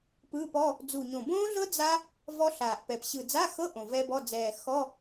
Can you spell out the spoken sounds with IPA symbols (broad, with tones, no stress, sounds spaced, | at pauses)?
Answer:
p ɯː˧˥˧ p ɔ˧˥˧ | d͡z u˨˩ ɲ õ˨˩ b õː˦˥ ɮ ɤ˦˥ d͡z a˦˥ | v ɔ˦˥ ɬ aː˨˩ ʔ p ɛ˨˩ p ɕ ɯ˨˩ d͡z a˧˥˧ x ɤ˧˥˧ ʔ õ˨˩ v ɛ˦˥ b ɔ˧˥˧ d͡z ɛː˨˩ x ɔ˧˥˧